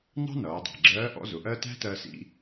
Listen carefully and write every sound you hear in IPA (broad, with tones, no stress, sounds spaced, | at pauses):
n ɑ̤˥ n ʌː˩˧ dˤ ɑ̤˩ ɡ͡ǁ ɜː˧˥ ʔ ɔ̰˧˥ z ʊ˩˧ ʔ ɜ˥ t æ̤˥ t ɜ˧ s ḭ˧